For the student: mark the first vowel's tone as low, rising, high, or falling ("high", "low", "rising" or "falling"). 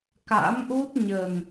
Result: rising